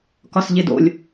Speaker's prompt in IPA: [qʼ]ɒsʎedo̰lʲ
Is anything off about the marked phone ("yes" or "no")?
yes